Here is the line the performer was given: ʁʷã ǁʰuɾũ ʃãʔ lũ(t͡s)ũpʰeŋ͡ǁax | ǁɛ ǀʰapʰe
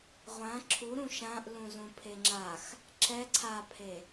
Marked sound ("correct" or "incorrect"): incorrect